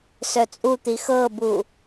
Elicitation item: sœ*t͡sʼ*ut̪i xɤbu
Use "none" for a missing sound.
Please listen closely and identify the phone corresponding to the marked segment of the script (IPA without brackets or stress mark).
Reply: t͡sʼ